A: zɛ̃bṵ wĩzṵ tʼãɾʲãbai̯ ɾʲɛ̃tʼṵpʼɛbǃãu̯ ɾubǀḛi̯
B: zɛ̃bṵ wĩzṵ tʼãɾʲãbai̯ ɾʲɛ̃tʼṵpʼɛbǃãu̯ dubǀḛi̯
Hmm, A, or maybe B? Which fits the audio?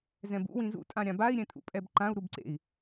A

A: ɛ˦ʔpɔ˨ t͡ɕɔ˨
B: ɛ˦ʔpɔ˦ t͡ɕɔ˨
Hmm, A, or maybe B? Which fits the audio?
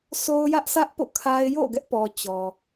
A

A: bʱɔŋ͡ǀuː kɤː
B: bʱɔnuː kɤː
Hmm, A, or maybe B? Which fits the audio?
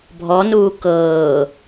B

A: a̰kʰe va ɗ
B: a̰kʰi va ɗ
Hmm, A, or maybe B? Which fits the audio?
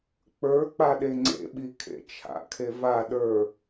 A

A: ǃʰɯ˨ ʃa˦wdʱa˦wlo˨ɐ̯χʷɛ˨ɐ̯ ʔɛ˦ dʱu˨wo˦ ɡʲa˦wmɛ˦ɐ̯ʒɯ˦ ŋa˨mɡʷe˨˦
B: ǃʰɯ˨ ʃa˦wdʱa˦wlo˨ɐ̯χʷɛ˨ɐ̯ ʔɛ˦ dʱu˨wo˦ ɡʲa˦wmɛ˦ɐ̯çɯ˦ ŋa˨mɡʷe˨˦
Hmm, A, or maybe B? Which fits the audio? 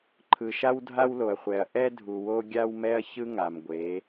B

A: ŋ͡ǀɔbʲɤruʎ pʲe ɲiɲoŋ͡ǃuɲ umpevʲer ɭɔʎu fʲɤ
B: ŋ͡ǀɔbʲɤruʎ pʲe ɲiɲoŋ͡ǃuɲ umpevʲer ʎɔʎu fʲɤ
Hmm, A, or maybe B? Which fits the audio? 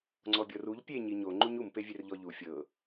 B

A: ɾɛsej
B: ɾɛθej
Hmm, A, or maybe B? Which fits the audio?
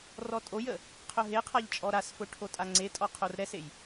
A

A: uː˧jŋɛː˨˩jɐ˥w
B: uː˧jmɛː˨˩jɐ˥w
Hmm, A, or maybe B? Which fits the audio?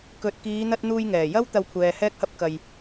A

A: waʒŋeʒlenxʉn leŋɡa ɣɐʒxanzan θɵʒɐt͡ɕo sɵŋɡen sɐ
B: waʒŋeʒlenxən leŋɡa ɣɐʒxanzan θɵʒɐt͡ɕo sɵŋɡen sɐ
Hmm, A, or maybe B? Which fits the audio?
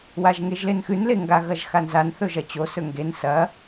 A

